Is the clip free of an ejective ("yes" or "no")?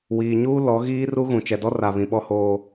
yes